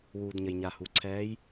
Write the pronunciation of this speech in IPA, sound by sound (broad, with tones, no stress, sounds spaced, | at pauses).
w uː˩ d ɲ ə˩ j ɲ a˩ h u˩ ǀʰ ɛː˧˥ j